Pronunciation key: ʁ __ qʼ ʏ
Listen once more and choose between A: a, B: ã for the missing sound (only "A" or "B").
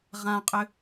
B